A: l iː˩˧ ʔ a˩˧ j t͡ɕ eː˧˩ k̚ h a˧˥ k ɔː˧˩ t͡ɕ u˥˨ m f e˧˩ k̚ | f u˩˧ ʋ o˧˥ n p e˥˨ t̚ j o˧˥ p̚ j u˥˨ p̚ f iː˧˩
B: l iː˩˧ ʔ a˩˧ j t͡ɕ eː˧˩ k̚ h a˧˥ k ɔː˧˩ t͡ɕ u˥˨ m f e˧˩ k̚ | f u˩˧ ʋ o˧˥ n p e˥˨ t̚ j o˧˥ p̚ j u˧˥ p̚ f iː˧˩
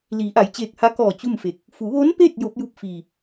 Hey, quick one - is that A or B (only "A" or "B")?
A